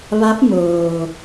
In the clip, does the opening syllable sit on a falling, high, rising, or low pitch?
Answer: rising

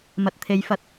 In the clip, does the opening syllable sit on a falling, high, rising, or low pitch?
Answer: low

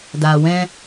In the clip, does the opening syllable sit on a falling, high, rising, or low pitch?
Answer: low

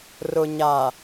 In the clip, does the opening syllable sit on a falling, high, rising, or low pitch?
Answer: low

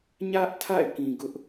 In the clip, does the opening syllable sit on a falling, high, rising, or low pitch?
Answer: high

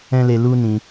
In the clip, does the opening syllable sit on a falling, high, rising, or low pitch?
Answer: high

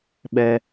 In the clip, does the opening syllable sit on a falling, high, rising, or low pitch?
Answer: low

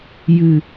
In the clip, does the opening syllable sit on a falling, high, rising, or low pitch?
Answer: low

